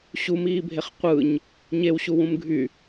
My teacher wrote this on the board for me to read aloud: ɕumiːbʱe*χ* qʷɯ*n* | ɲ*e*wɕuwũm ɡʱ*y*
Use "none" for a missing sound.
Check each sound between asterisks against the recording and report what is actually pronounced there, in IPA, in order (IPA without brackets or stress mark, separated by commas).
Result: χ, ɲ, e, y